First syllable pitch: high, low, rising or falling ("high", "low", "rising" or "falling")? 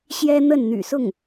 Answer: high